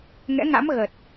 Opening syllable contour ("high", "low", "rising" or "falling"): rising